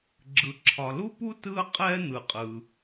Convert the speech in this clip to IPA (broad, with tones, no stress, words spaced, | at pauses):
ɡ͡ǁɯ˩ǁʰɒ˩lu˥pu˥ tɯ˥ə̯qʼɛ˥ n̪ɯ˩qʼɯ˩